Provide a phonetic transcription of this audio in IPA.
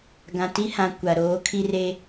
ɡ ã˨ t i˦ h ã˨ kʷ a˨ ɾ oː˨˦ kʰ i˦ r e˦

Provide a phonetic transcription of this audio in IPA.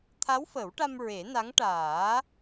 t̪ʰ a˧˥ w f ə˨˩˦ w ʈ a˧ m ɹ e˨˩˦ n a˧˥ ŋ ʈ aː˨˩˦

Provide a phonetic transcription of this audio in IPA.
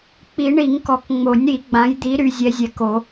k͡p i˨˩˦ ɳ i˨˩˦ ŋ k ɔ˨˩˦ k ŋ͡m o˨˩˦ nʲ ɾ i˨˩˦ ɡ͡b ã˨˦ j d̪ i˨˦ ɾ y˨˦ zʲ ɛ˨˦ zʲ ɛ˨˦ k o˨˩˦

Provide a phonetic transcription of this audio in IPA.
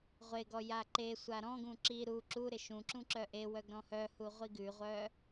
ʁʷ e ɡ ɔ j a ǃ e sʷ a ɾ ɔ̃ ɡ ũ ǁ i ɾ u ǁ u ɾ ɪ ʃ ũ ǁ ũ ǁ œ ʔ e w œ ɡ ɾ ɔ̃ h œ h u ʁʷ i ɡ ʉ ʁʷ œ

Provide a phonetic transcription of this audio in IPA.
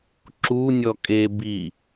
ǁ u nʲ ɔ kʼ e b i

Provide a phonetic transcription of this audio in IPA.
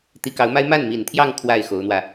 t̪ i˧˥ k ɑ˧˥ ʊ̯ m a˥ ɪ̯ m a˥˩ n m i˨˩ n t̪ʰ j ɑ˥˧ ŋ kʰ w a˥˩ ɪ̯ x o˧˥ ʊ̯ n̪ w ä˧

